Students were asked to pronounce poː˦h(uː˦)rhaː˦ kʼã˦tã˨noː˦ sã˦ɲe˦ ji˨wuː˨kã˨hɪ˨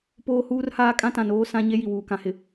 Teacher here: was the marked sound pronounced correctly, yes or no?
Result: yes